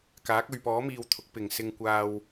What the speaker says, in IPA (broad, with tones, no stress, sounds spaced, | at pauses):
k aː˨˥ k̚ ɵ˨ ɥ p ɔː˨˥ m iː˨ w t̪ʰ ʊ˨˥ k̚ p ɪ˨ ŋ s ɪ˧ ŋ kʷ aː˧ w